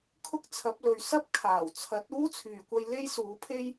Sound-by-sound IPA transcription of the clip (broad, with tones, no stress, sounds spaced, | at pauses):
kʰ ʊ˥ k̚ t͡sʰ ɐ˨˥ p̚ l ɵ˨ ɥ s ɐ˥ p̚ kʰ aː˨˩ w t͡sʰ ɐ˨˥ t̚ uː˥ t͡sʰ yː˨˩ kʷ ɐ˧ j l e˥ j s uː˨˥ pʰ e˥ j